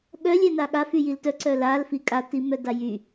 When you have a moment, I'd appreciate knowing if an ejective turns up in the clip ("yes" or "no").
yes